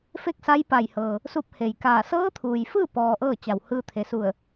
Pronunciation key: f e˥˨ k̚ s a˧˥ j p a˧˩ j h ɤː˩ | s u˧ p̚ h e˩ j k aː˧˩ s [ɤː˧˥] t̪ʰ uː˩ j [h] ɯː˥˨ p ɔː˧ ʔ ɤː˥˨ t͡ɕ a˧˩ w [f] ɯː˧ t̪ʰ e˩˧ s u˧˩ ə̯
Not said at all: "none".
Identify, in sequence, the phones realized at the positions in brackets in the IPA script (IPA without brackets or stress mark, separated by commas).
ɤː˧˥, f, h